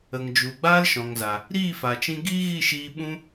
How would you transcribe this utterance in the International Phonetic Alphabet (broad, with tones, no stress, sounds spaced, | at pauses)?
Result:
ə˨ ŋ d͡ʒ u˨ ɡ͡b aː˦ l ʃ ɔ̃˨ ŋ z a˨ | ɾ iː˦˨ f a˨ t͡ʃ ĩ˧ ɡ iː˦ ɣ i˦˨ ʃ iː˧ ɓ ũ˦